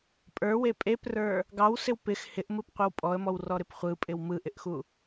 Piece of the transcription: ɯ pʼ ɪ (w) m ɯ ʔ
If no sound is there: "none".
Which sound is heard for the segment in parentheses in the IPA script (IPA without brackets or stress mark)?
w